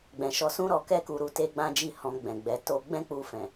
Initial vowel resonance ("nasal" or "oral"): nasal